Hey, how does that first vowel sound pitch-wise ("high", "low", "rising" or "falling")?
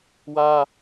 high